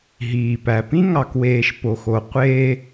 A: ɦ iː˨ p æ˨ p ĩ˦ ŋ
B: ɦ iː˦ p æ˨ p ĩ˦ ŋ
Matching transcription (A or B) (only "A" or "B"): A